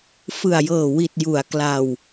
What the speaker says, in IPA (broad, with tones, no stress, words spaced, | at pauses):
fɯ˨˩a̯jɤː˨˩ wi˨˩t̚ ju˩˦a̯ kla˧w